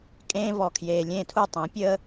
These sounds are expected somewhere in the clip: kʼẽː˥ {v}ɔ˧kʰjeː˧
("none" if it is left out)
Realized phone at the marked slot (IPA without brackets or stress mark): v